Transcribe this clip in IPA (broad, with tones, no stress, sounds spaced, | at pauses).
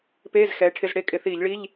p eː˧˥˧ z x ɛː˨˦ ʈʰ ɪ˧˥˧ z ɽ e˥˩ kʼ ɪ˧˩˧ θ iː˧˩˧ ʎ ɭ i˧˥˧ ʎ